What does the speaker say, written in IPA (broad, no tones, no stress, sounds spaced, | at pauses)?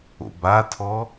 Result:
o̰ b a tʰ ɔ